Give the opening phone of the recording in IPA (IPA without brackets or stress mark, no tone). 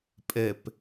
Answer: pʼ